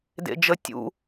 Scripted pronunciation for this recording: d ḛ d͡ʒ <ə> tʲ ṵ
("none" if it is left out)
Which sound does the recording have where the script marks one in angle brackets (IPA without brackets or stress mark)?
ə